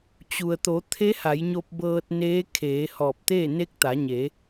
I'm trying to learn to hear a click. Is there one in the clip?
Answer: no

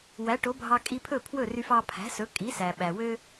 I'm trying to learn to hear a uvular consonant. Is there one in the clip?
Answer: no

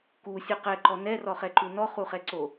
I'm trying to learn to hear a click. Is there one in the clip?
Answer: yes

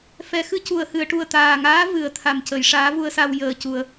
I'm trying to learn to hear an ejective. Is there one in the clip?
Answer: no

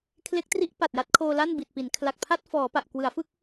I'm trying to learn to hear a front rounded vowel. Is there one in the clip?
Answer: no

